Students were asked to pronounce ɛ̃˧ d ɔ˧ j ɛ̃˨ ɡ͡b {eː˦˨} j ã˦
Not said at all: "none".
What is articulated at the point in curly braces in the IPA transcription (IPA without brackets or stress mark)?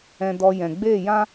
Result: eː˦˨